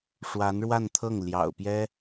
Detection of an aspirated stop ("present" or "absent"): present